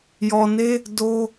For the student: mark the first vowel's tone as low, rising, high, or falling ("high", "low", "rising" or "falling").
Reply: low